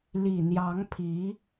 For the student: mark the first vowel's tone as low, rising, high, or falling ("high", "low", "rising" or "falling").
low